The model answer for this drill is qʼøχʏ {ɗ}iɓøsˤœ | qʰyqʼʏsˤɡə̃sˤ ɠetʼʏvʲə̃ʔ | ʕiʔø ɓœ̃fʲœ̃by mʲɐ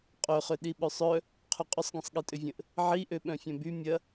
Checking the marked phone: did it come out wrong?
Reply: no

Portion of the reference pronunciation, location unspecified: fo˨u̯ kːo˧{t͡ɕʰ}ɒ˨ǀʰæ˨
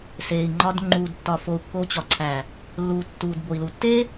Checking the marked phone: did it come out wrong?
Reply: yes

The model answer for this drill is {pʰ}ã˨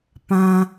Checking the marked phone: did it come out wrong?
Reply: yes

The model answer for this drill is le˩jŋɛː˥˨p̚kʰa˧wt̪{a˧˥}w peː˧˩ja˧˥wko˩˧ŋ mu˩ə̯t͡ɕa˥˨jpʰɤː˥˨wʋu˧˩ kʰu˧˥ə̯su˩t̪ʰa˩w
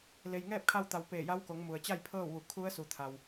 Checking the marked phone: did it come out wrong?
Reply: yes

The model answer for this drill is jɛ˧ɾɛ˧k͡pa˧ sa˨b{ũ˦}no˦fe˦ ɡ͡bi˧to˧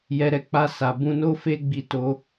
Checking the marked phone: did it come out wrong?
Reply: yes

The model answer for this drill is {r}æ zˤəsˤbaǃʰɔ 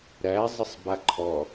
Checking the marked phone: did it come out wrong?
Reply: yes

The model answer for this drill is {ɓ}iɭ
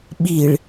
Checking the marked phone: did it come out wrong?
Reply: no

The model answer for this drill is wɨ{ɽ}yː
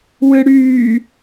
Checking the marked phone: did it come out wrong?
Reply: no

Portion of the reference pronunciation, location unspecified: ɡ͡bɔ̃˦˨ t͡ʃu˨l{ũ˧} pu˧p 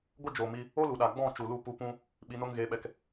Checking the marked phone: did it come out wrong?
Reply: yes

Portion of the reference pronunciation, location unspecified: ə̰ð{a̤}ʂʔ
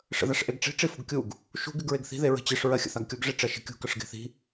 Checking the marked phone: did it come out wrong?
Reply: yes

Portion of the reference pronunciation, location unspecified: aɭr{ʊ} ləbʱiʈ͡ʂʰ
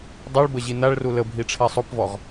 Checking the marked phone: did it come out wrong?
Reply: yes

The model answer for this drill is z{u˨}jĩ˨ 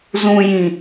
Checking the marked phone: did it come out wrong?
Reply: yes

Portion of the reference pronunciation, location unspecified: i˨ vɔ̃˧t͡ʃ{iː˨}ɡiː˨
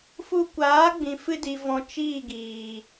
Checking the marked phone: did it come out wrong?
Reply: yes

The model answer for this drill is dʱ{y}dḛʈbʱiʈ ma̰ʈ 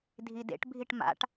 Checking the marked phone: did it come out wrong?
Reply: yes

